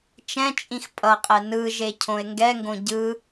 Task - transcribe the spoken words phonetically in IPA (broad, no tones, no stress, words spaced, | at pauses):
t͡ʃɛ̃t͡ʃʼĩx pʼʌqʼɛ nɯʒe cʰõe̯ŋɡɛŋɡõ ɟɯ